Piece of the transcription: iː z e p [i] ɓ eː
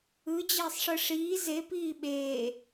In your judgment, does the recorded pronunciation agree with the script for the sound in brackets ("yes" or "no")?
no